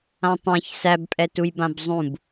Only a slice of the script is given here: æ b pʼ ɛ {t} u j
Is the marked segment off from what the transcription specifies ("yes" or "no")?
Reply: no